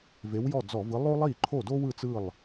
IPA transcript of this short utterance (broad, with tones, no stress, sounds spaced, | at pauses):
v e˨˥ w j ɔ˥˩ d͡z ɔ˧˩˧ v ɯ˨˥ lˠ o˥ lˠ i˥˩ ǃʰ o˥˩ d o˥ w ɯ˥˩ t͡s ɯ˥˩ lˠ